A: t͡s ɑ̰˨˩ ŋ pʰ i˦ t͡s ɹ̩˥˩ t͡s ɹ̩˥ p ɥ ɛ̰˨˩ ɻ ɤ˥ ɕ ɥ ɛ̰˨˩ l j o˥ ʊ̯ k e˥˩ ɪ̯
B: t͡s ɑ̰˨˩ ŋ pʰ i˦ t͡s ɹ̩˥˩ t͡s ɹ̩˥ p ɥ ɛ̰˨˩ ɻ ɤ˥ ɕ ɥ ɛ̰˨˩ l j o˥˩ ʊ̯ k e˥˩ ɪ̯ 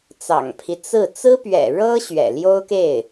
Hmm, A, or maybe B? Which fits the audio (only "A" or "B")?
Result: A